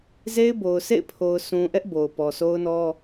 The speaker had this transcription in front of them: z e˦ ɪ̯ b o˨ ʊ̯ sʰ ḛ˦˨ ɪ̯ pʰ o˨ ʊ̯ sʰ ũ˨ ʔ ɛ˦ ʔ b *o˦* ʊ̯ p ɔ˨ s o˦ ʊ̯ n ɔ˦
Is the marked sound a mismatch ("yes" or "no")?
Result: yes